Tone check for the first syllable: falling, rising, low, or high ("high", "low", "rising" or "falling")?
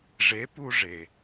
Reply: rising